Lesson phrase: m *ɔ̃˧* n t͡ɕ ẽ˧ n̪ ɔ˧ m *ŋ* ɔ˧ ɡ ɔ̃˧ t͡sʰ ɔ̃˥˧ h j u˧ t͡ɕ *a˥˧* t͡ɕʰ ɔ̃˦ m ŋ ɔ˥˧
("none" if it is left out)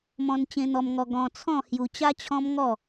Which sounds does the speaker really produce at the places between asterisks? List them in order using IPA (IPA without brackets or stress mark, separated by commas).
ɔ̃˧, ŋ, a˦